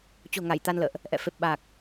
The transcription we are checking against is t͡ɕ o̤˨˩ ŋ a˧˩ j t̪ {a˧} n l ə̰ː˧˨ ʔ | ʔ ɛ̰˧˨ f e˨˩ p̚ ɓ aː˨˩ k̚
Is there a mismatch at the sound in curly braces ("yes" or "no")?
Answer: no